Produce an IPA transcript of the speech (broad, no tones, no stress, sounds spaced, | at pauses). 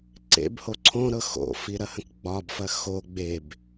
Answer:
ǀ ḛ b h o ǀʰ õ ɾ ɤ x o̰ f i ɾ ɐ h ə̃ k ɡ͡b ɒ b f ɐ x o ɡ͡b e b